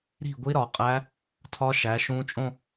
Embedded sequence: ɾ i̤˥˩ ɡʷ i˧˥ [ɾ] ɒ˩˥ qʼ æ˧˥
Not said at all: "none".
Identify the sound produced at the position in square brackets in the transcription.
ɾ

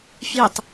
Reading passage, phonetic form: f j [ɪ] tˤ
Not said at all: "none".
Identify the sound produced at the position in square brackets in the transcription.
ɪ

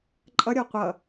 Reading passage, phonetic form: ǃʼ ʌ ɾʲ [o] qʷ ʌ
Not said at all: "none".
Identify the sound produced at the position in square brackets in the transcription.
ɔ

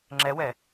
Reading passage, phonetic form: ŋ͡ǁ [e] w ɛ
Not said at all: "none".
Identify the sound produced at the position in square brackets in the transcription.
ɛ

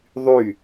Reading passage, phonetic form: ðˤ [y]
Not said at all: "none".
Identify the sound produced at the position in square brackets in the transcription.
y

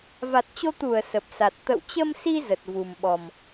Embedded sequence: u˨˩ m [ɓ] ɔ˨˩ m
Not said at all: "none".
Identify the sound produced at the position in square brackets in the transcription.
ɓ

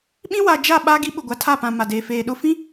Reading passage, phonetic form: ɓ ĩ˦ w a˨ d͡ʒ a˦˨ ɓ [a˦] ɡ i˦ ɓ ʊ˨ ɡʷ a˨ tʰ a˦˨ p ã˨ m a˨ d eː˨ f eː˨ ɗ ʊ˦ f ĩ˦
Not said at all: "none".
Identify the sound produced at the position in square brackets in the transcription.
a˦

